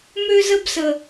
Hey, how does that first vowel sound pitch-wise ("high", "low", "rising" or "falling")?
high